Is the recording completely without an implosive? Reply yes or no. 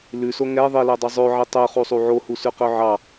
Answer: yes